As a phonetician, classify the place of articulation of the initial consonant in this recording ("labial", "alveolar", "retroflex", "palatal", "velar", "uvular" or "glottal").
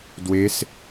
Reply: alveolar